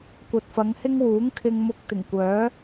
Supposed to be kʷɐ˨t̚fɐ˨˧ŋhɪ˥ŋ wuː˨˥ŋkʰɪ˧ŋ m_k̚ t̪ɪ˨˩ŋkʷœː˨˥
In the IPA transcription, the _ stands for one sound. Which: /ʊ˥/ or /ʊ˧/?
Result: ʊ˧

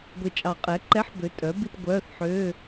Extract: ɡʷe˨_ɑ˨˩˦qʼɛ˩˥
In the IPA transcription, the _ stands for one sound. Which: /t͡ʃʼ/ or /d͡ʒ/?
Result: t͡ʃʼ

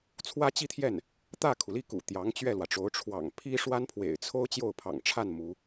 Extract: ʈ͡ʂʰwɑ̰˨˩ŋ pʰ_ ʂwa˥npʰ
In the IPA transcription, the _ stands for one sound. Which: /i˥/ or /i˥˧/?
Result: i˥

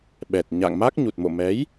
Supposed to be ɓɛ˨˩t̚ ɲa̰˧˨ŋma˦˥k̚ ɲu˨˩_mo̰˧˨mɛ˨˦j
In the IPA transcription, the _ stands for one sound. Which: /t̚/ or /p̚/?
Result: t̚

